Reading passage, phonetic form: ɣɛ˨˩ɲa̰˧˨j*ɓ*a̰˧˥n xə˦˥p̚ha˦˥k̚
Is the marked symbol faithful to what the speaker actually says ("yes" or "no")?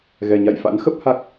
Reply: no